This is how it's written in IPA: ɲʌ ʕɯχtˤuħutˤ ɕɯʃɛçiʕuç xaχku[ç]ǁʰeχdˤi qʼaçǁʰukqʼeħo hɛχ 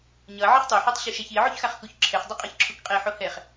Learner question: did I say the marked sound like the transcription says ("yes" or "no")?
yes